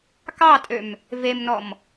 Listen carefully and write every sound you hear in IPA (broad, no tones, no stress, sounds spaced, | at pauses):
k ɑ tʼ ø m | v e m n ɔ m